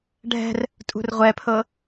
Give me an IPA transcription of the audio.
ɖʱ ɛ̤ r | tʼ ṳ r ʁʷ ɛ pʰ ɤ

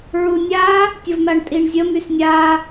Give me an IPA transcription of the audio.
ɹ u nʲ a | tʲ ə v m a ɳ tʼ i ɳ zʲ ə m y s nʲ a

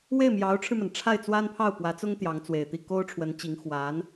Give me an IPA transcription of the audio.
w e˥˩ ɪ̯ m j ɑ˧˥ ʊ̯ ʈ͡ʂʰ ɻ̩˧ m a˩ n ʈ͡ʂʰ a˥˩ ɪ̯ t͡s w a˥ n pʰ ɑ˥˩ ʊ̯ p w ä˧˥ t͡s ʊ˥ ŋ t̪ j ɑ˧˥ ŋ t͡s w e˨˩ ɪ̯ t̪ i˥˩ k o˥ ʊ̯ ʈ͡ʂʰ w ə˧˥ n t͡ɕ i˧˥ ŋ x w a˧˥ n

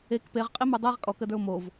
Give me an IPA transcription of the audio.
e k p e ʁ qʼ i m ə˞ dˤ ɛ ʁ kʼ ɔ k ə d ə˞ ʊ̯ m o v

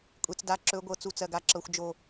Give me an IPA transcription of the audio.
kʷʼ e˨ t͡s d a˨˦ ǁ ɵ˨˦ ɡʷ ɤ˨ t͡s u˦ t͡s ɜ˨ ɡ a˦ ǁ ɤ˨ xʷ d͡ʒ o˨

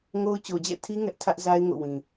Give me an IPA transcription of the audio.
ŋ o˦ ʊ̯ t͡ɕ o˨ d͡ʑ ɛ̰˦˨ tʰ i˦ ŋ ɛ˦ ʔ tʰ ä˦ ʔ z a˦ ɪ̯ ŋ o̰˦˨ w ĩ˨

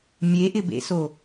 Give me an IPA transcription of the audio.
mʲ e ʔ ɪ b ḛ s o

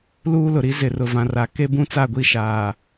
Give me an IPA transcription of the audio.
l uː˦ l ʊ˨ ɾ i˦ z ɪ˨ r ʊ˨ v ã˨ r a˨ k e˦ b ũ˦ t͡s a˦˨ ɡʷ i˦˨ ʃ aː˨

